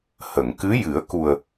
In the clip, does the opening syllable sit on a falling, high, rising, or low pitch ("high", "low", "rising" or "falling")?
low